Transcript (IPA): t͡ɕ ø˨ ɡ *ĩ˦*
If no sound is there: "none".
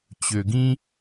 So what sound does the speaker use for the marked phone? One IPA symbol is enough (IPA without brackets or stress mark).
ĩ˦